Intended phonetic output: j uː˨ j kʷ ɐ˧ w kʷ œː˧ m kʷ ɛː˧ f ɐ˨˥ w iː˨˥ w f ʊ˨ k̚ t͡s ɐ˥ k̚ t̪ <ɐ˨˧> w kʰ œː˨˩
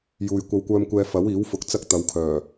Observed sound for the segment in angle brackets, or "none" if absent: ɐ˨˧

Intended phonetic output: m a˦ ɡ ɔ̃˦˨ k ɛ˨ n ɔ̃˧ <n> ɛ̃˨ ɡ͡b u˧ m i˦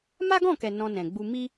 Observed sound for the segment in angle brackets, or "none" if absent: n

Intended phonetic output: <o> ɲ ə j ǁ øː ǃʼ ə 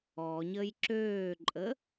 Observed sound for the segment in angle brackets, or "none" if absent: ɔ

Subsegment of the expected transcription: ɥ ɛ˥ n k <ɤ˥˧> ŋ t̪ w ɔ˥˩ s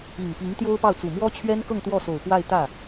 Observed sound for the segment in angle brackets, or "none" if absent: ɤ˥˧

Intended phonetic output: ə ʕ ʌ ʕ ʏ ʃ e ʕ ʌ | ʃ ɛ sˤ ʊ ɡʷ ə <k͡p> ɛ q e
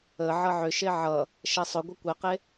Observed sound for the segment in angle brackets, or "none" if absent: kʷ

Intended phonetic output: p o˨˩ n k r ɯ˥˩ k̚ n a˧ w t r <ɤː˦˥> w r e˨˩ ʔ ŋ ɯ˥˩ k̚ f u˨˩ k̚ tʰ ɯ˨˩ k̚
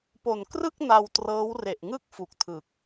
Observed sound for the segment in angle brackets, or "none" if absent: ɤː˦˥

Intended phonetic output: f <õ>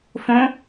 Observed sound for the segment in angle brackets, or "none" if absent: õ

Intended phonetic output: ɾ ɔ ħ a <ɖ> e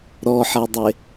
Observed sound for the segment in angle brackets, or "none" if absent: dˤ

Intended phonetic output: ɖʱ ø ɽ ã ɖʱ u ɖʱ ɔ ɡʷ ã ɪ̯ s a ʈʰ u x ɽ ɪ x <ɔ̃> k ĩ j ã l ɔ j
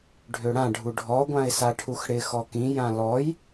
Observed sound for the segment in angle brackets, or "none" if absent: ɔ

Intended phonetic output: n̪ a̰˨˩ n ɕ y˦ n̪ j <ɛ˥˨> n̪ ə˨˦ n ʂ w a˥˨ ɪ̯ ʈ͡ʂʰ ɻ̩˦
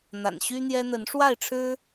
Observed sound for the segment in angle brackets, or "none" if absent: ɛ˦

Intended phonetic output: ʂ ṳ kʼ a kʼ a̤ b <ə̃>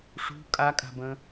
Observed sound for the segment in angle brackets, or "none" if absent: ə̃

